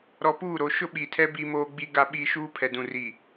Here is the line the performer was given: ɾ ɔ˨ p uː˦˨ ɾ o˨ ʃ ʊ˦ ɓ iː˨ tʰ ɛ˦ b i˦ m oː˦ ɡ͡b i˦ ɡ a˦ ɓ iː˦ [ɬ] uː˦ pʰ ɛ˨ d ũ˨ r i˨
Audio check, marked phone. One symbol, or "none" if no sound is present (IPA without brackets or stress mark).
ʃ